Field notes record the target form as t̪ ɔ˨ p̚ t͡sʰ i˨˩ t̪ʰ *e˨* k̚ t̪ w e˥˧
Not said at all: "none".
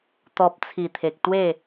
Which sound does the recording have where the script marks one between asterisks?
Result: e˨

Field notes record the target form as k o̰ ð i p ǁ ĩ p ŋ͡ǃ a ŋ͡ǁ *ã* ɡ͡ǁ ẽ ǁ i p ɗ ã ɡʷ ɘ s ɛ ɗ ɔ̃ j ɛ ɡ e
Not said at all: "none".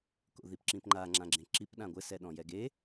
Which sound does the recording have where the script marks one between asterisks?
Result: ã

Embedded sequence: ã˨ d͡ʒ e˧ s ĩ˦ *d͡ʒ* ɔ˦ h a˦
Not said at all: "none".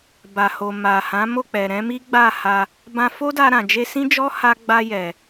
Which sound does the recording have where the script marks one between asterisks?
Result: d͡ʒ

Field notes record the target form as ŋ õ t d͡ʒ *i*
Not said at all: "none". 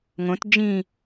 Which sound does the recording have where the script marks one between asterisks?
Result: ĩ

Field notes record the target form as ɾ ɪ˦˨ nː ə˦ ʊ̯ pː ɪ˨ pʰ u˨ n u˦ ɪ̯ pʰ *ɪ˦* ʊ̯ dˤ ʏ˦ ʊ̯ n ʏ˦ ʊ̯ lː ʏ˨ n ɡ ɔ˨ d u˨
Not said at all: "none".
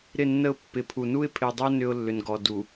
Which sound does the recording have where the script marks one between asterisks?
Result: ɪ˨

